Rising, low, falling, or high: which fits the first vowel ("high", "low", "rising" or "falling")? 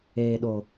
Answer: low